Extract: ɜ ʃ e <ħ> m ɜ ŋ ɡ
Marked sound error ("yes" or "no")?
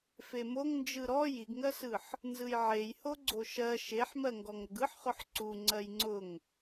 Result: no